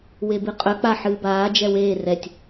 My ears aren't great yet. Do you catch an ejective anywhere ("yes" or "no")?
yes